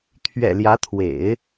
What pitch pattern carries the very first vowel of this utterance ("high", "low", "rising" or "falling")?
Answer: low